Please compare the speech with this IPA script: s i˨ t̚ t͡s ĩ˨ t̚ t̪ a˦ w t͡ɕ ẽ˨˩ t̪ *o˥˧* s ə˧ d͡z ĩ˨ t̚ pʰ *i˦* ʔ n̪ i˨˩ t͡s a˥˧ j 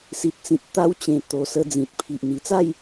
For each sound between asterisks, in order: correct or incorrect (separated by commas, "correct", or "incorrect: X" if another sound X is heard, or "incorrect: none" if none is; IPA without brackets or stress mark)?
incorrect: o˨˩, incorrect: i˨